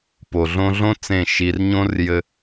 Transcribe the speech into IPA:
po˨ɮõ˧ ɮõ˦ t͡sẽ˦˨ʃi˧r ɲõ˦rjɘ˧

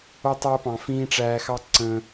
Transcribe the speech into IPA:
o˧tˤæ˧pɑ̃˨fĩː˧ ʈ͡ʂæː˧xɑ˦ ǀə̃˧

